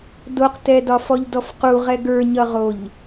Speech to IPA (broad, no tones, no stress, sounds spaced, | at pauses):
d o q t ɛ d ɒ f ɔ ʎ d ɔ f q u ʁ ɛ ɡ ə˞ ɲ ʌ ʁ o ʎ